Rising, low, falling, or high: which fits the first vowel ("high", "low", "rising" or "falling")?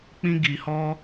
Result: high